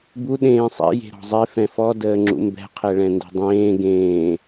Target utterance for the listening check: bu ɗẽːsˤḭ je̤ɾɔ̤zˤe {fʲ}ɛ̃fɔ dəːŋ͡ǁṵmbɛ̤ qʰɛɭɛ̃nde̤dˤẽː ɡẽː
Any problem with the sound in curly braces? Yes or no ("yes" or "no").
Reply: yes